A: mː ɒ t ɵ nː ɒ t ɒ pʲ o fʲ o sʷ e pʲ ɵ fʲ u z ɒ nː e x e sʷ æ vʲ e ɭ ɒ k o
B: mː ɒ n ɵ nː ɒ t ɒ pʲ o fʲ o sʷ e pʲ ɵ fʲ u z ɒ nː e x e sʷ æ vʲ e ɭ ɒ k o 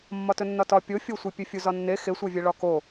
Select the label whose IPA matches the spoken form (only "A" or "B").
A